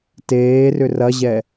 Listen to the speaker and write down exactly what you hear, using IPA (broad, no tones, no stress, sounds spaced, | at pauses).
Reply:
t eː r ʏ r ɐ ʑ ɛ